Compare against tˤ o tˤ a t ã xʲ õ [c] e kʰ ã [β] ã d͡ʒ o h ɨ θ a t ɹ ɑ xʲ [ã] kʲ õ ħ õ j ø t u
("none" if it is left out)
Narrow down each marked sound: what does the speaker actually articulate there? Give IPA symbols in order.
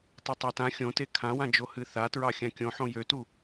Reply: t, w, ã

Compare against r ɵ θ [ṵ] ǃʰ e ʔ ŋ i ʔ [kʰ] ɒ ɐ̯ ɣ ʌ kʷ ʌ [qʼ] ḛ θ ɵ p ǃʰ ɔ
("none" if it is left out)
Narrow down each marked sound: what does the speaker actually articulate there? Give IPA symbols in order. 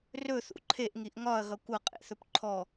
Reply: ṵ, ŋ, qʼ

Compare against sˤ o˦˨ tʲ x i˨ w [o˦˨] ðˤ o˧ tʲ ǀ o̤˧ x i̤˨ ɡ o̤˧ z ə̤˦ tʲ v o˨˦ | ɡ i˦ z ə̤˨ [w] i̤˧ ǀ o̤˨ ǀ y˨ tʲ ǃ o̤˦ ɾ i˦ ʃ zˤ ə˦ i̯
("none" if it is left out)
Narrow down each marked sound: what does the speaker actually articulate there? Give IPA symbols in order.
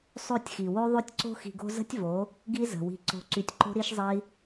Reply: o˦, w

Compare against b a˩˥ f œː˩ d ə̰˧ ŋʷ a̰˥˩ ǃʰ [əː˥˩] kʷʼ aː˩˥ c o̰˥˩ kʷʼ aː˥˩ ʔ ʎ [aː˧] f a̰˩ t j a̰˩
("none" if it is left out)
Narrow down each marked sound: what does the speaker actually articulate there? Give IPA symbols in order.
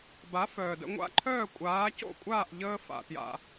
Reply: œː˥˩, əː˧

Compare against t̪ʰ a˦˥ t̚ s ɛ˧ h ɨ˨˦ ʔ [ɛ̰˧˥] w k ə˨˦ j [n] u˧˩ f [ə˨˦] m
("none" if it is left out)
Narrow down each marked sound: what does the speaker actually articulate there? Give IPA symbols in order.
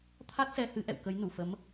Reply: ɛ̰˧˨, n, ə˨˦

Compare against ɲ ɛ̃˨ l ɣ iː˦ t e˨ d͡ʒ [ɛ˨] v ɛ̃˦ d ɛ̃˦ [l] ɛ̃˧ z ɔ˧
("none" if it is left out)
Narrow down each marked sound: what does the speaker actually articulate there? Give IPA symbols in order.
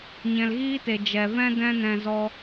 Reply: ɛ˨, n

